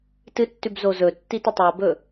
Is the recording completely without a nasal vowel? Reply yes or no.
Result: yes